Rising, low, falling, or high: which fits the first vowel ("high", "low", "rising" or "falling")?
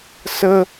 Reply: high